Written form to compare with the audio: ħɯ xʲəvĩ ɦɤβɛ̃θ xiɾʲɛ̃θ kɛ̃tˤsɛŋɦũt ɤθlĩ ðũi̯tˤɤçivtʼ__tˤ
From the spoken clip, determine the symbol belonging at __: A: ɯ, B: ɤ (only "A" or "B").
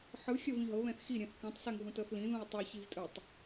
A